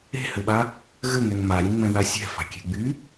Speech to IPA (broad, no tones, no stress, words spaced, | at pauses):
e̤hɘɓa | ɣɘŋɛŋ maɾʲẽŋ͡mɛ̃ða sʲɛ̤fa̤kʲe̤ ɡ͡by